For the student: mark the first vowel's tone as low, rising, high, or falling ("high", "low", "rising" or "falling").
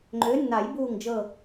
rising